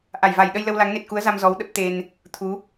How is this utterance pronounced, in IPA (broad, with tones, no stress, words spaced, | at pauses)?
ʔa˧˩jva˧˩jɗə˧jlə˧w la˨˦ŋne˨˩t̚ku˨˦ə̯za˧m zɔ˨˦wɗə˦˥p̚ t̪e˧n | t̪ʰu˨˦